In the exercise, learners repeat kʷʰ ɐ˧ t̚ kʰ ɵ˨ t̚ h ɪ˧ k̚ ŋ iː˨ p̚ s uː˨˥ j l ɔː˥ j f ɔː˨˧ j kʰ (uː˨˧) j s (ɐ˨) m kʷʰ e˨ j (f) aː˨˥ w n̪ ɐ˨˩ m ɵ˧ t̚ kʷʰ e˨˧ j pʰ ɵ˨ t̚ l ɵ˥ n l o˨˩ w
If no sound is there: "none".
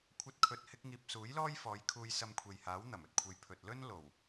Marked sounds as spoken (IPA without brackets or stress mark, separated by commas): uː˧, ɐ˧, h